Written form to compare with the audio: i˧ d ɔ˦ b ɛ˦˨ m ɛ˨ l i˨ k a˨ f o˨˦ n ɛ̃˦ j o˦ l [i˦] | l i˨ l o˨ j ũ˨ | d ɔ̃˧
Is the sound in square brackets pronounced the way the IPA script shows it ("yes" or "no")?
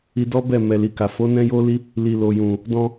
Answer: yes